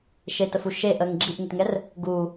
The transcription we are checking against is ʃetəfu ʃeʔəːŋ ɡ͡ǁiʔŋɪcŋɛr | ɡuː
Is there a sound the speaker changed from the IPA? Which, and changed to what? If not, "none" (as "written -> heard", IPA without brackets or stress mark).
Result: c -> t